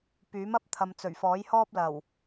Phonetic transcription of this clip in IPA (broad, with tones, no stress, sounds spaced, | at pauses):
p yː˨˥ m ɐ˥ p̚ t̪ʰ ɐ˨ m t͡s ɵ˨˩ ɥ f ɔː˨˥ j h ɔː˥ p̚ l ɐ˨˩ w